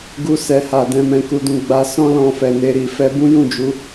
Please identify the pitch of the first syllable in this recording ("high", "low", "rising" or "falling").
high